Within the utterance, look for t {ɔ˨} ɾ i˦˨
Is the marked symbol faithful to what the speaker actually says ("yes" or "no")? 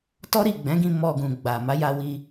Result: no